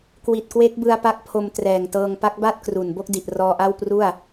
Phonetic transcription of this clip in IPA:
kwi˨˩t̚kwe˦˥k̚bɯ˧a̯pa˦˥k̚ pʰo˧mtrɛː˨˩ŋtɤː˧ŋ pa˦˥k̚ba˥˩t̚kru˨˩n bo˥˩k̚di˨˩ʔ rɔː˧ʔa˥˩wpru˥˩a̯

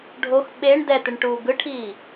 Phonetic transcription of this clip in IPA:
ɖʱox ɓeɳ dɛt̪eɳʈuː ɡɯʈʰiː

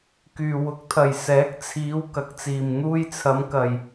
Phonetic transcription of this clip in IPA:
kyː˨wʊ˨˥k̚t̪ʰɐ˨j sɛː˨˥k̚t͡sʰiː˨˧w kɐ˨˥k̚t͡siː˨m n̪uː˧jt͡sʰɐ˨˧mkɐ˨j

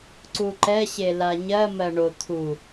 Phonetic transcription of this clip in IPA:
ǀuǃɛɕe laɲɜ mɜɳo t̪ʰu

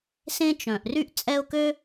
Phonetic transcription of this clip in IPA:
sẽ˦t͡ʃœ̃˩ʔ ry˥ʔt͡sʼɛ˦ʊ̯kø˥

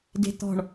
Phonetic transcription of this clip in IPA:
de̤t̪ɔ̤ɳ

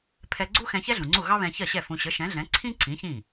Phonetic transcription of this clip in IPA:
pʰɛ˧ɡ͡ǀu˥xɛ̃˧ çɛ˥ɮũ˩ŋ͡ǀu˥˩ ɣɑ˥βɛ̃˧çɜ˥˩ɕɛ˥˩ fũ˧ ɕə˩˥ʃɛ̃˩˥ɮɛ̃˩˥ ǀʰĩ˥ǀĩ˩˥ çĩ˥˩

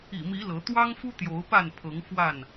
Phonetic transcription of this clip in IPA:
ḭ˨˩mi˨˦ lɤ˨˦ t̪wɑ˦ŋfu˦ t̪jo˨˦ʊ̯pa˥˨n pʰɤ˨˦ŋfwa˥˨n

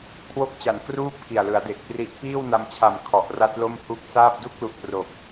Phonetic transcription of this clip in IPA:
kʰwo˥˩k̚t͡ɕa˨˩nkruː˥˩p̚ ki˨˩a̯lɯ˩˦a̯de˨˩k̚pri˦˥ʔ piː˥˩wna˧mt͡ɕʰa˨˩m kʰɔ˨˩ʔra˦˥t̚lo˥˩m hu˦˥k̚ saː˥˩p̚ du˥˩k̚lu˨˩ʔ pro˨˩k̚

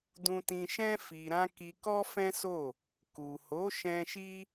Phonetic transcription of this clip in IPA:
dũ˧tĩ˧ʃɛ̃˦ fi˧ɾã˦ ki˧kɔ˦fɛ̃˦so˦˨ | ku˨ho˨˦ʃɛ̃˧ ʃi˦

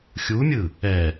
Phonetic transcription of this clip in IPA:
xʲumʲɯ | ɛ

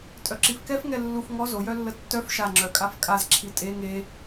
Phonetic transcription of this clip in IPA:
tʼœǁifkɛf ŋɛlːuf ŋɔ zo jœlːətːœf ʃa ŋ͡ǁœkʼafkʼaz ǁʰitʼe ŋe

